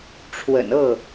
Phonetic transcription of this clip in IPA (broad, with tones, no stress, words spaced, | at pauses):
ʈ͡ʂʰwə̰˨˩nɤ˥˩